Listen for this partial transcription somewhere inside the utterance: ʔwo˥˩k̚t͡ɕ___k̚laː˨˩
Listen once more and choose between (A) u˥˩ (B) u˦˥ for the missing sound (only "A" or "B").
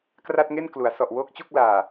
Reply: A